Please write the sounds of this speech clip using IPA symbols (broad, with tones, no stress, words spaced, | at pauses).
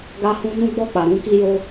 ɡa˦hũ˦ nũ˦ɡ͡bɔ˦˨k͡pa˨ɾũ˧ ki˦jo˦